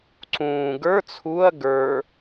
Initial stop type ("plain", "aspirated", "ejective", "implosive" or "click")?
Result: click